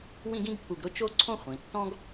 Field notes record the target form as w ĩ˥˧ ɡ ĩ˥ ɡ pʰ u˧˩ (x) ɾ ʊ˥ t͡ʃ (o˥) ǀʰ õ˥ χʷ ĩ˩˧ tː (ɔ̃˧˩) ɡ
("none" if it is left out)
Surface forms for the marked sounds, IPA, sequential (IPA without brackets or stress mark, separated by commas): ɡ, o˥, ɔ̃˥